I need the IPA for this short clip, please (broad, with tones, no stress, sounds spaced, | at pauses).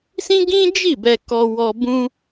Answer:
s ĩ˦ ɡ ĩ˦ d͡ʒ i˦˨ b ɛ˧ k ɔ˧ w ɔ˧ b ũ˦